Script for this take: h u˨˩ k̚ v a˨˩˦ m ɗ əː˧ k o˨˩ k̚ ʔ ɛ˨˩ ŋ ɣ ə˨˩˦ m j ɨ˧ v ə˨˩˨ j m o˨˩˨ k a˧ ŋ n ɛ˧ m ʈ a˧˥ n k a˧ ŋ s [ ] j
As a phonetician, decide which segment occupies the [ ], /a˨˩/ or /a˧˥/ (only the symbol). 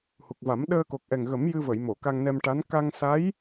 a˧˥